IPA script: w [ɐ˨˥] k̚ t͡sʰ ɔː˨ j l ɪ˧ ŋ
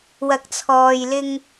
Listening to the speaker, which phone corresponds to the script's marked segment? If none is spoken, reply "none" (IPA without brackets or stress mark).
ɐ˨˥